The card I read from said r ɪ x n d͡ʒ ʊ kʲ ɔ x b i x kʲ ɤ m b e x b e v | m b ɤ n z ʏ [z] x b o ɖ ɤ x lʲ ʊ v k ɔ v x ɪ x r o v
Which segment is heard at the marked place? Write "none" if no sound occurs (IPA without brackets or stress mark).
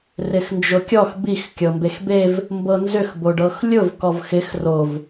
none